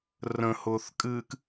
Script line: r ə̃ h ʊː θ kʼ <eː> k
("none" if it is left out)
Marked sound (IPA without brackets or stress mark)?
ɨː